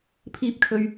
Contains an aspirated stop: yes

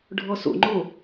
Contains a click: yes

